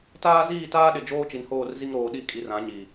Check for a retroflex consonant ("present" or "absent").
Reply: absent